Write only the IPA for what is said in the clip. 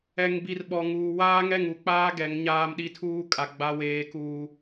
ɛ˨ ŋ b i˨ r ɓ ɔ˨ ŋ uː˨ w aː˦ ŋ ɛ˦˨ ŋ u˨ k͡p aː˦ ɡ ɛ˨˦ ŋ ɲ aː˦ m ɗ i˦ tʰ uː˦ kʼ a˨ ɡ͡b a˦ w eː˦ k uː˦

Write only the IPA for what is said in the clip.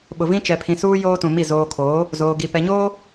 ɓ ʊ˨ v ĩ˦ t͡ʃ ɛ˨ pʰ ĩ˨ s uː˦ j oː˦ t ũ˨ m i˦˨ z oː˨ kʰ oː˨˦ | z oː˨ ɡ i˨ p ɛ˨ ɲ oː˦

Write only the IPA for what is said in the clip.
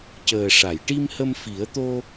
c əː˨˩ ʂ a˨˩˨ j ʈ i˧ m h ə˧ m f i˨˩˦ ə̯ t̪ o˧

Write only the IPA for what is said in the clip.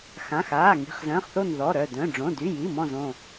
x ã˩˧˩ x aː˩˧˩ ŋ i̤˩˧˩ χ z ə̃ː˩˧˩ χ θ o˧˩ n ð ɔ˩˧˩ ɾ œ˧˩ d œ̃˩˧˩ ɖ͡ʐ õ˩˧˩ d y˩˧˩ j i˩˧˩ m ɔ̃˧˩ z õ˧˩

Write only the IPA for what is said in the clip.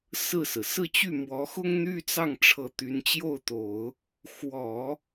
s ɹ̩˥˩ s ɹ̩˩ s ɹ̩˥˧ t͡ɕ y˥˩ m w ɔ˧˥ x ʊ˥ ŋ n̪ y˥ t͡s ɑ˥˩ ŋ ʈ͡ʂʰ ɤ˧˥ t̪ y˧˥ n t͡ɕ j o˥˩ ʊ̯ t̪ o˨˩˦ ʊ̯ | x w ɔ˨˩˦

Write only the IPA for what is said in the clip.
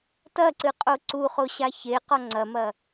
t ɐ ǀ ɨ qʼ o ǀ u χ o ɕ a ç e q ɔ ŋ͡ǀ ɐ m ɐ

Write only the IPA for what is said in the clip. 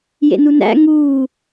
j ḛ n u n æ̰ ŋ uː

